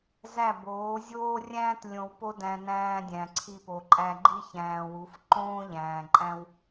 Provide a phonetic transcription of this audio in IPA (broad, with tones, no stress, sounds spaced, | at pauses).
z æ˦˨ b oː˨˦ zʲ oː˦ rʲ æ̃ː˦ t lʲ õ˧ w p o˦ d æ̃˧ n æ̃ː˧ dʲ æ̃˨ ǀʰ i˧ p o˨ ǃʼ æ˧ ɡ͡ǃ i˦ ç æ̃ː˨ w u˨˦ f ǃ õː˦ ʎ æ̃ː˨ ǃʼ æ̃˦ w